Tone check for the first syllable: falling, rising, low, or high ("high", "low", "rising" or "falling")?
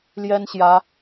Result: high